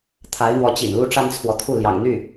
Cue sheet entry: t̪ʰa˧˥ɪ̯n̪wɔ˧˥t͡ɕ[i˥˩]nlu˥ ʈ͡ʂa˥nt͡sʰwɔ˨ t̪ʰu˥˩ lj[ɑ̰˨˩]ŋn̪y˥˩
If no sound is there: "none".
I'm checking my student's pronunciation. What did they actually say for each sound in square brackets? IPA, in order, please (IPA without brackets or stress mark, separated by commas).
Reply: ḭ˨˩, ɑ̰˨˩